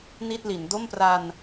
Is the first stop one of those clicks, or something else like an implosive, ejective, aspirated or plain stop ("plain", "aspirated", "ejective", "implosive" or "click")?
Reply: plain